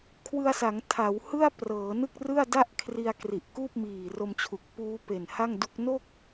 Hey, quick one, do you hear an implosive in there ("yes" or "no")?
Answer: no